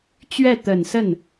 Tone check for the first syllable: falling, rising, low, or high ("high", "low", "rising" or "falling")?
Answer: falling